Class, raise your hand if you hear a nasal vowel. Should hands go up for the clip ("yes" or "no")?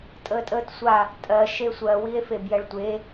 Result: no